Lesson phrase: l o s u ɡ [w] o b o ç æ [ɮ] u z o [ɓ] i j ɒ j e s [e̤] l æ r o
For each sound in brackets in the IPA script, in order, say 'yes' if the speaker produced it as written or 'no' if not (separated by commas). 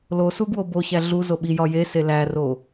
yes, yes, yes, no